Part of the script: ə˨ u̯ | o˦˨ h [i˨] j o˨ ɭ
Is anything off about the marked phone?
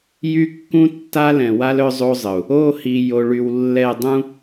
no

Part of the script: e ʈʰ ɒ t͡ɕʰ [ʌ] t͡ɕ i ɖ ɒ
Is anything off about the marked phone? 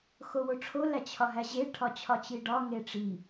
yes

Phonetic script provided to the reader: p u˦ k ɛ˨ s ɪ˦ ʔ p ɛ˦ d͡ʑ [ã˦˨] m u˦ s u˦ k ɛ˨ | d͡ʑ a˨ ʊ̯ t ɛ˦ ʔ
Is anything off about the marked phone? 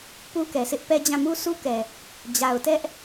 no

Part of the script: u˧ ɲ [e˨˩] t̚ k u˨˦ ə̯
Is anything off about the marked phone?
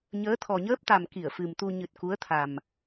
yes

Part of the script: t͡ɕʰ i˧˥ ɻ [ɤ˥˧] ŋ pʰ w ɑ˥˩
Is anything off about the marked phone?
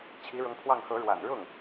yes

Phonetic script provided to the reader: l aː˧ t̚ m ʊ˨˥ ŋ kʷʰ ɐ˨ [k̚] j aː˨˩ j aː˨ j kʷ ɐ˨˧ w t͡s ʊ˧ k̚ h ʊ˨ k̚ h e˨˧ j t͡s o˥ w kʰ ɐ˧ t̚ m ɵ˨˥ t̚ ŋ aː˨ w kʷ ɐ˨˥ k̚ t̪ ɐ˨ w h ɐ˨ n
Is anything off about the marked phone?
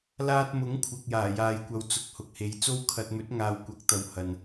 no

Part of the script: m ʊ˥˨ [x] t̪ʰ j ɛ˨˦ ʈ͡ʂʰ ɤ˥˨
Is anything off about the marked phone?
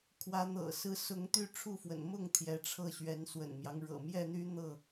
yes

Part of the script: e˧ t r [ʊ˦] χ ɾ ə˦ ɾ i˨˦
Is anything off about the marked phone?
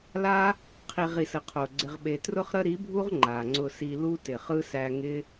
no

